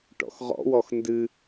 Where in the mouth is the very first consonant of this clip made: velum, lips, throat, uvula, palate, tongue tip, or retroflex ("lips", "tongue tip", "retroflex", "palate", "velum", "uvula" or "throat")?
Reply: retroflex